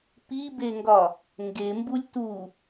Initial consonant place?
labial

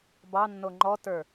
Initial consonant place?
labial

